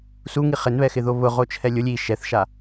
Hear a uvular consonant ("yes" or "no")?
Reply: yes